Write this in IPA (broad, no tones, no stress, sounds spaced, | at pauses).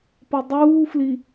p ʌ dˤ uː f l i